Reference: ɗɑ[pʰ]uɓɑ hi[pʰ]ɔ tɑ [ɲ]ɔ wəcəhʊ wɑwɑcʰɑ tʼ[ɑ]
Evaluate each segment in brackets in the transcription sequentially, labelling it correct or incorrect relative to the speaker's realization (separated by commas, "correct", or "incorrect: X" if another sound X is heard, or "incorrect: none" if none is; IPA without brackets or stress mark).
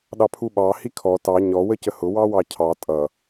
correct, incorrect: kʰ, correct, incorrect: ʌ